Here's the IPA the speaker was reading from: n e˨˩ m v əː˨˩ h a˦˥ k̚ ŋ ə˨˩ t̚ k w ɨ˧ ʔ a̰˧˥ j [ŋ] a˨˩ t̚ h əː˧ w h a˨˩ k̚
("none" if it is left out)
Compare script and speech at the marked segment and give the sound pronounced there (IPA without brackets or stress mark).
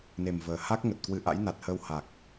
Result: n